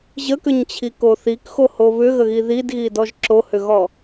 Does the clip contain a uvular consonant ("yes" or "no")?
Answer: no